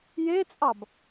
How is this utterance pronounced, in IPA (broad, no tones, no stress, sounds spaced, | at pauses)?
j e t͡sʼ ɑ b